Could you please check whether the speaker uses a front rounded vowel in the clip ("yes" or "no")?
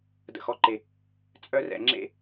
yes